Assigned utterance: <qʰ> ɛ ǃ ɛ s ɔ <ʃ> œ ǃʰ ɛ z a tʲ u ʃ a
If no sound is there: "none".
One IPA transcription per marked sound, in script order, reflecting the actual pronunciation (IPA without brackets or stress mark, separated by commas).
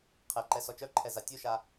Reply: qʰ, t͡ʃ